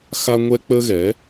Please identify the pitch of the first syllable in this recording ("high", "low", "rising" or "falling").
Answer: high